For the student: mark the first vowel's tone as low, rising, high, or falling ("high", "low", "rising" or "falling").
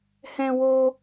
high